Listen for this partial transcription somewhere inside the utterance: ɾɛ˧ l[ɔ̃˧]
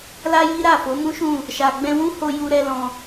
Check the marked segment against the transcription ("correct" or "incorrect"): correct